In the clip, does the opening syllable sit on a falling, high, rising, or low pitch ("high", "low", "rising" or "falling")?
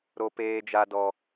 high